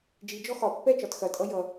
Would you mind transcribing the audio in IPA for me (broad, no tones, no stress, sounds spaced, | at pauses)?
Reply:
d͡ʒ i d͡ʒ ɔ x ɒ pː ɛ t͡ʃ ɒ t x ɐ tʼ ʌ j ʌ